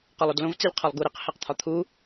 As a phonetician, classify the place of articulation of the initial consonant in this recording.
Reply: uvular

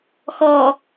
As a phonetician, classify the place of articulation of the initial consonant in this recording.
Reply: velar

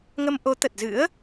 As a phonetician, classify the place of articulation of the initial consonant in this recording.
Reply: velar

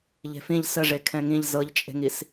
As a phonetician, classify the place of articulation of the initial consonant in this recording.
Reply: palatal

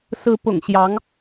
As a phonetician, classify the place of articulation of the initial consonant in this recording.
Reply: alveolar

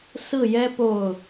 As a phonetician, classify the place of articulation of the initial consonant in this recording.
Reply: alveolar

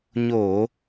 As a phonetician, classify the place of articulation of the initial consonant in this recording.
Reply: palatal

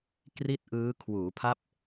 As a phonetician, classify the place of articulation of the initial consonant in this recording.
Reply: velar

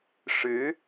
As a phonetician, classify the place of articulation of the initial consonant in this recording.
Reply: retroflex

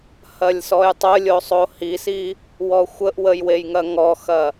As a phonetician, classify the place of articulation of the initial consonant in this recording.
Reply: glottal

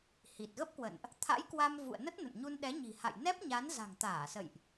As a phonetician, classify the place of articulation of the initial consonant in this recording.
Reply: glottal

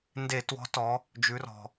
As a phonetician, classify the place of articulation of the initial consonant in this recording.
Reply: alveolar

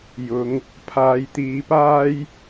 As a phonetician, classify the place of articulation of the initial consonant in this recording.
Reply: palatal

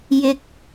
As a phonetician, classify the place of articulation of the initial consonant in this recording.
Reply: palatal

